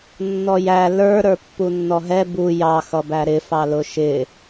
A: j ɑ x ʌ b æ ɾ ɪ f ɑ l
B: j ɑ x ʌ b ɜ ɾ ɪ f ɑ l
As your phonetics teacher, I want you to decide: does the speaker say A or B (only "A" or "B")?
A